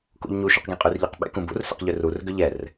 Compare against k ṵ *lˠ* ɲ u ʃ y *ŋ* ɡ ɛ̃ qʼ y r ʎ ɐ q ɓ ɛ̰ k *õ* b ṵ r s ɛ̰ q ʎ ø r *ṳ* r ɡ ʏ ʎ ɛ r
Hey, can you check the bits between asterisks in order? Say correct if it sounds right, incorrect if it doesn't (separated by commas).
incorrect, incorrect, incorrect, incorrect